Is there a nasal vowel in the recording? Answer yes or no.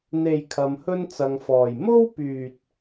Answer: no